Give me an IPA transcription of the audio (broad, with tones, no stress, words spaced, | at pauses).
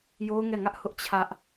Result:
jo˦ʊ̯ŋɛ˦˨ŋä˦ʔ hʊ˦ʔt͡ɕʰä˦ʔ